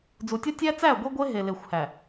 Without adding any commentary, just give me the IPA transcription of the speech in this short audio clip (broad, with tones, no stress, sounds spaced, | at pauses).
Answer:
d͡z u˨ tʲ ɒ˦ tʲ æ˦ t͡s æ˦˨ ɡʷ i˦ ɡʷ e˦ ɦ e˨ l e˨ xʷ h æ˨